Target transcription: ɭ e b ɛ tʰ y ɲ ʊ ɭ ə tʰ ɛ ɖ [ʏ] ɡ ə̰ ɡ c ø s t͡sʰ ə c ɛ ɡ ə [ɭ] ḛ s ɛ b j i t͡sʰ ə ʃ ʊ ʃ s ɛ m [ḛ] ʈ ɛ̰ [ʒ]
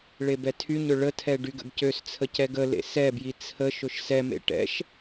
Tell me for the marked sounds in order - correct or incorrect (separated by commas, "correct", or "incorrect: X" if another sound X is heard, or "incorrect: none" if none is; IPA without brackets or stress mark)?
incorrect: y, incorrect: l, correct, incorrect: ʃ